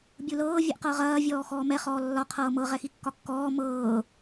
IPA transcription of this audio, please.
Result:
bʲ u l ɤː vʲ ɛ ʔ q ɤ ʁ ɐː vʲ ɔː x ɔː m ɛ χ ɔː lː ɒ qʰ ɤː m ɤ ʁ ɛ x i kː ɒ kː ɔː m ɤː

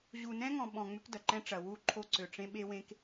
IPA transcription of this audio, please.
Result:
ʑ u˨ n ɛ̃˦ ŋ ɔ̃˨ ɓ ɔ̃˨ ŋ͡m ʏ˦ k d ɐ˨ ǃ ɛ̃˦ ʈ͡ʂ ɐ˨ w u˦ ǃʰ o˦ ǀ ø˨ ʈ͡ʂ ẽ˦ ɓ e˦ w ẽ˦ k

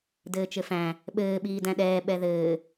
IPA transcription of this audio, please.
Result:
d ɘː t͡ʃ ɘ f æ̃ | ɓ ɘː ɓ iː d æ̃ ɗ ɛː ɓ ɛ ð ɘː

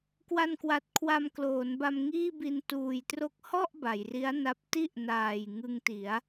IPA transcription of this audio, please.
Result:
k w a˧ n k w a˨˩ t̚ kʰ w a˧ m k l oː˩˦ n b a˧ m ŋ iː˥˩ b i˧ n t uː˨˩ j t r o˥˩ k̚ h ɔ˥˩ ʔ b a˩˦ j r i˦˥ a̯ n a˦˥ p̚ t i˥˩ ʔ n aː˨˩ j ŋ ɯ˧ ŋ t i˩˦ a̯

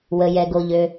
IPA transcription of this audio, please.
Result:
w ə˩ j ɛ˩ ɡ o˩ ʎ ø˩

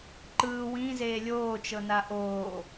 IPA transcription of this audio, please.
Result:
ǃ ɯː w ĩ z eː lʲ oː t͡ʃ ɤ n a ʔ oː

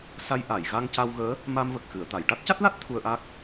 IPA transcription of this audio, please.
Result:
s a˧ j ʔ a˨˩˨ j ɣ a˧ ŋ c a˧ w ɣ əː˧˥ | m a˧ m v ə˨˩ k̚ x ɨ˨˩˨ ə̯ t̪ a˨˩˨ j ʈ a˦˥ t̚ c a˦˥ t̚ l a˦˥ t̚ t̪ʰ u˧ ə̯ ʔ a˦˥ k̚

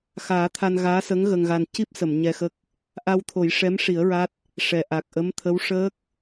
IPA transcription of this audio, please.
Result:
x aː˨˩˦ t̪ʰ a˧ n ɣ aː˧˥ s ə˧˥ ŋ ɣ ə˧ ŋ ɣ a˧ n c i˦˥ p̚ s ə˨˩˨ m ɲ ɛ˧ x ə˦˥ k̚ | ʔ a˧ w t̪ʰ o˨˩˦ j ʂ ɛ˧˥ m ʂ i˨˩˦ ə̯ ɹ a˦˥ t̚ | ʂ ɛ˨˩ ʔ a˨˩ k̚ ʔ ə˧˥ m t̪ʰ ə˧˥ w ʂ əː˦˥ k̚

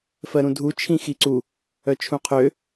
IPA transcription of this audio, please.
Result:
f ɜ ɾ ũ dʱ u t͡ʃʰ ĩ x i ǀ u | œ t͡ʃʰ ũ qʰ ø

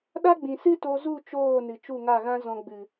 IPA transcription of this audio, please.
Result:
ɗ a˦ ɡ͡b ĩ˨ s ɨ˦ t o˧ z u˦˨ t͡ʃ oː˦˨ n ɨ˨ t͡ʃ u˦˨ ŋ a˦˨ ɣ ã˦ z ɔ̃˧ ɡ͡b ɨ˨

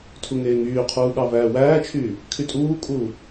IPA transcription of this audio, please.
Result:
tʰ u ŋ eː ŋ yː qʰ uː ɠ ɑ v æː w æː t͡ʃʰ yː | kʰ y tʼ uː kʼ uː

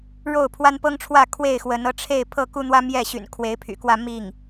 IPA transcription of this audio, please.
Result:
ɻ o˥˩ ʊ̯ pʰ w a˥ n p ɤ˥ ŋ ʈ͡ʂʰ w ä˥˧ kʰ w e˥˩ ɪ̯ x w ə˧˥ n ɤ˧˥ ʈ͡ʂʰ e˥˧ ɪ̯ pʰ ɤ˥˩ k u˥ n̪ w ä˥ m j ɛ˥˩ ɕ y̰˨˩ n kʰ w e˧˥ ɪ̯ pʰ y̰˨˩ k w ä˥˧ m i˥˩ ŋ

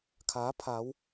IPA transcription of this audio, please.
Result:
kʰ aː˨˥ pʰ aː˨˧ w

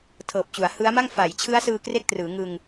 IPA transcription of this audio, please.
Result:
tʰ ɤː˨˩ p̚ t͡ɕ u˩˦ a̯ h ɯ˦˥ a̯ m a˥˩ ŋ f a˩˦ j t͡ɕʰ ɯ˦˥ a̯ s ɯː˧ k r e˥˩ k̚ t r ɯː˩˦ ŋ ɯ˧ ŋ

